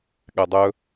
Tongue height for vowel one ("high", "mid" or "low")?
mid